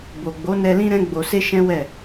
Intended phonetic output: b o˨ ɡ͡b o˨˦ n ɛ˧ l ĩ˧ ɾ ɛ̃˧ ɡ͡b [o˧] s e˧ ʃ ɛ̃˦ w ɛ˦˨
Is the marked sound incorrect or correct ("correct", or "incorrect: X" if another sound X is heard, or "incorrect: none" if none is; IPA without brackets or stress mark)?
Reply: incorrect: o˨